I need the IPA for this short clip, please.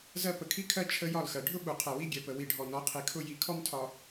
z ɜ˦ p ə˨ kʰ i˦ kʰ ɜ˦ t͡ʃʰ ə˦ j ɒ˦˨ l x ɜ˨ ɖʱ ʊ˦ ɓ u˨ qʰ ɛ˨ w i˦ ɡʲ ɛ˨ p ə˨ w i˨ ɖʱ ɔ˨ n ɔ˨˦ qʰ i˨ kʰ ʊ˦ j i˨ kʰ ɔ˦ m tʰ ɒ˨

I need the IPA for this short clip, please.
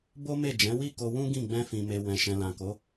b o˦ m e˦˨ d͡ʒ ɛ̃˨˦ w i˦˨ k o˧ w ũ˦ ɡ ĩ˦˨ ɡ͡b ɛ̃˧ f ĩ˨ m e˨ w ɛ̃˨ ʃ ɛ̃˨ l ã˨ k o˨˦

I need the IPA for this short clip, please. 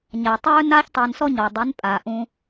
ɲ a˨ tˤ ɵː˦ n aː˦ ç tˤ ɜ˧ n s ɔ˦ ɲ ɔ˨ dˤ i˨˦ n pʼ aː˨ ʔ ũ˧

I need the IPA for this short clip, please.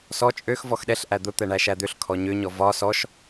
s ɔ t͡ʃʼ ø x v ɔ x ɗ ɛ ɬ ʔ æ d̪ ʊ t̪ ɛ ɳ æ ʃ æ d̪ ø ɬ kʰ ɔ ɲ ø ɲ ɔ v ɒ s ɔ ʃ

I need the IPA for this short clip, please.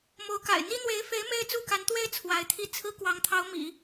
m o˧˥ ʊ̯ k a̰˨˩ ɪ̯ n̪ i˥ n̪ w e˧˥ ɪ̯ f e˧˥ ɪ̯ m e˥ ɪ̯ t͡s u˥˩ k a˧˥ n t̪ w e˥ ɪ̯ t͡sʰ w a˧˥ ɪ̯ t̪ʰ i˥˩ t͡sʰ ɹ̩˥ k w ɑ˧˥ ŋ t̪ʰ ɑ˧˥ ʊ̯ m ḭ˨˩˦

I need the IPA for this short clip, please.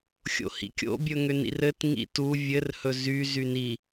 xʲ o̰ h ḭ kʲ o̰ bʲ ɵ ŋ ʏ n ḭ r ɘ t ŋ ḭ t u vʲ ɘ r h ɵ z y z y n i

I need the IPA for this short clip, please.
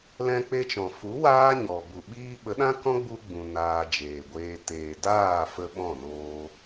l ɛ̃˧ k͡p e˧ t͡ʃ ɔ̃˨ f u˨˦ w aː˦ ɲ ɔ˨ b u˨ ɓ iː˦ ɓ ə˨˦ ɗ ã˦ k ɔ̃˦ ɡ͡b u˧ ɡ͡b ũ˨ n aː˧ d͡ʒ eː˨ ɡʷ eː˧ t eː˨ d aː˦˨ f ə˧ ɓ ɔ̃˦˨ n oː˧

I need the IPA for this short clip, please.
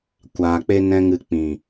kʷ aː˨ k͡p e˦ n ɛ̃˧ ŋ ɨ˨ k͡p ĩ˨

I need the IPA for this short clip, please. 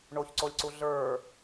ɳ o ç ǀ o lʲ ǀ u ɮ ə˞

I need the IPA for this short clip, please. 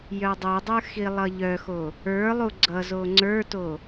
j œ dˤ œ dˤ ə˞ x i lˠ ʌ ʎ œ x o | ə˞ lˠ u ɡ͡ǀ ʌ z o ŋ͡ǀ ə˞ t o

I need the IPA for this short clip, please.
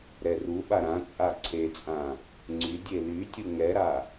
ɾ ɛ r u ɓ a ɾ ã t͡sʼ a ǀʰ e t͡sʼ ã | ŋ͡ǀ y dʲ e l y tʲ u ŋ ɛ ɾ a

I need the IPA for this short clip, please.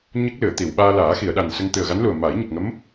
ɲ ə˦˥ k̚ l ɨ˨˩˨ ə̯ t̪ i˨˩˨ w ɓ aː˧ l aː˨˩˦ x i˨˩˨ ə̯ ɗ a˨˩ n s ə˧ ŋ t̪ ɨ˨˩ ə̯ ɣ a˧˥ n l u˨˩ ə̯ m a˨˩˦ j ɲ ə˨˩ k̚ ŋ ə˧˥ m

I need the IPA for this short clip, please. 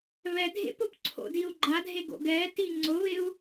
β ɛ dʱ ḛ p ʊ p ǀʰ o̰ d i u̯ ɡ͡ǃ a dʱ e ɡ o̰ ɡ ɛ t i ŋ͡ǀ ʊ β ɪ u̯

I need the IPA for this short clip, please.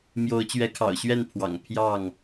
m j o˨˦ ʊ̯ t͡ɕ ɥ ɛ˨˦ kʰ ɑ̰˨˩ ʊ̯ ɕ ɥ ɛ˥˨ n pʰ w ɑ̰˨˩ ŋ pʰ j ɑ˥˨ ŋ

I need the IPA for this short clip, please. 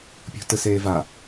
pʲ o̤ t ɯ s eː v a

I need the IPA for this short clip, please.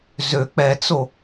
z ø k͡p ɛ t͡s o

